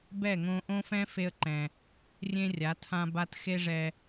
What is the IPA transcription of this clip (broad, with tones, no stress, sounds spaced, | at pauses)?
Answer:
b ɛ˦˨ ŋ õ˧ ʔ õ˦ f ɛ̃˦ f e˧ ə̯ ǃ ɛ̃˨ | rʲ ẽ˦ rʲ a˨˦ tʰ ã˧ b a˧ t x e˦ ʐ ɛ˧